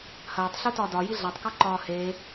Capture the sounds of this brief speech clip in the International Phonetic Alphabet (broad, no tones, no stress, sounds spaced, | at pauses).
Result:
h ɐː tˤ ɬ u t ɒ d ɒ j i ɮ a tˤ k ɒ ǃ ɒː h eː